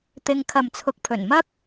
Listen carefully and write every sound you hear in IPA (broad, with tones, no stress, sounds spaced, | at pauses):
t̪ ɪ˧ ŋ kʰ ɐ˨ m t͡sʰ ʊ˨ k̚ pʰ ɵ˨˩ n m ɐ˥ k̚